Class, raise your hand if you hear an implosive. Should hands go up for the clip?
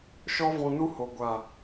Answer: no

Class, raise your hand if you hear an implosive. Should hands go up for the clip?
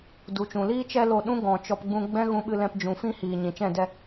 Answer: yes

